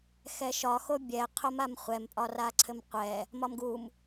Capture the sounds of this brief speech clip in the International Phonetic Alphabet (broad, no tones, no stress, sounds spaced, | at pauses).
x ɛ ʃ ɒ x o bʲ ɛ qʰ o m a m χʷ ɛ m pʼ ɒ r a ǀʰ ɘ m qʷ ɛ | m ɒ m ɡ u m